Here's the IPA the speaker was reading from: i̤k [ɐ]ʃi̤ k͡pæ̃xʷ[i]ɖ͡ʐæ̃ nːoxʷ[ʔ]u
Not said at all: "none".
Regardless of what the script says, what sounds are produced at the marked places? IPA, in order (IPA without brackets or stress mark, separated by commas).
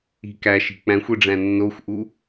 æ, i, ʔ